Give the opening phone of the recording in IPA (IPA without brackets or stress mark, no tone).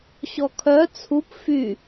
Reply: ɕ